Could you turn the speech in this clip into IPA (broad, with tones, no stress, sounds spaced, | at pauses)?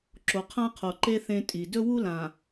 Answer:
ǁ o˨ qʰ ã˦ qʰ o˨ ǃ e˦ θ ẽ˦ tʼ i˨ d ɵ˦ w u˦ l ã˨